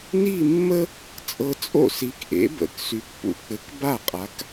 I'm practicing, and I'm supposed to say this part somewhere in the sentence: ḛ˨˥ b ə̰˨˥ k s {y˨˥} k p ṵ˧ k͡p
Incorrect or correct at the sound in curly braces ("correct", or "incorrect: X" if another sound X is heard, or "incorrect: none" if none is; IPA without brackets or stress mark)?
correct